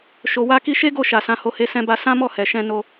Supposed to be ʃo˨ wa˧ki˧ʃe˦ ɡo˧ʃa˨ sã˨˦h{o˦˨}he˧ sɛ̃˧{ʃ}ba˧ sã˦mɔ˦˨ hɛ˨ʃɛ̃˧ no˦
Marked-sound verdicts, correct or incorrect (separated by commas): incorrect, incorrect